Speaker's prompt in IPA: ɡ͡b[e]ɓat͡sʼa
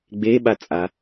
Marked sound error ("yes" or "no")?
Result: no